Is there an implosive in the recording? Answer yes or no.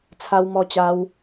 no